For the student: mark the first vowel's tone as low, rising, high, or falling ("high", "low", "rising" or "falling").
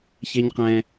high